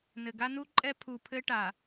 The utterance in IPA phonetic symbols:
n ɘ˨ ɡ a˦ n u˦ ǃʼ ɛ˦ pʰ u˨ pʰ ɘ˦ ʈ a˨

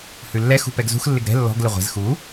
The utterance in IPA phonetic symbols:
h ʉ lː ɛ x ṳ p ɛ ɡ z ṳ x lː ɪ ɡ ɾ ɛ̤ lː ɔ̤ ɡ l ɪ ʁʷ ɛ̤ z x u

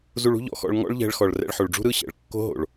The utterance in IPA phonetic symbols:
z u˧ ɭ ṳ˥ ʎ ɔ̰˧ x ɔ̰˧ ɭ ŋ ɔ̰˥ ɭ ʎ ɛ̤˧ ɭ x ɔ˩ ɭ r ɛ̰˧ ɭ ħ o˩ ɭ ɖ͡ʐ ṳ˥ ɾ ɯ˥ ɕ ɛ̰˩ ɭ kː o̤˥ ɦ o̰˩ ɭ

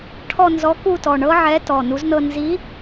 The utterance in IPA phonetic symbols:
ʈʰ ɔ˥˧ n z ɔ˧˥ k u˥˧ t ɔ˩˧˩ ɳ ɤ˥ ʕ ɛ˧˥ t ɔ˩˧˩ n u˧˥ z n ɤ˥˧ n z i˧˥

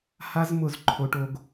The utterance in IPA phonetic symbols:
h a˦ z m ʊ˨ z ǃʰ o˨ ʈ o˨ ɡ

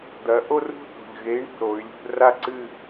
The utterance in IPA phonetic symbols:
d̪ ɐ˩˧ ʔ o˥˧ r ṳ˥˧ θ o̤˨˩ ʎ ɣ e˨˥ i̯ ɳ ṳ˥˩ ɾ o˩˧ y̯ lʲ ṳ˥˧ r a˥˧ ǀ ɨ˥˧

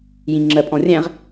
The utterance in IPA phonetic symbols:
j ĩ ŋ͡ǁ ɜ pʼ ɔ̃ rʲ æ̃ ʁ

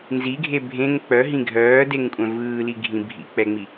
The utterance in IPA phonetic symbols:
n z i ɡʱ e bʱ ẽ ŋ k͡p œ ɦ ĩ ɡʱ œː d e ŋ kʷʼ œ̃ v ɯː l i ɡʱ ĩ bʱ ḭ k͡p ɛ ŋ͡m i

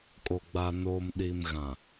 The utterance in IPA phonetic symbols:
kʼ o˨ ɡ͡b a˨ n oː˨ m ɗ i˨ m ɣ ã˨

